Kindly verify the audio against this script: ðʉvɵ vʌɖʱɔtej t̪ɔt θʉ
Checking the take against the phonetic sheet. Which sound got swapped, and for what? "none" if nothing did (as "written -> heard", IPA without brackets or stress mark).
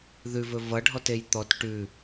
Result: θ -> ʈ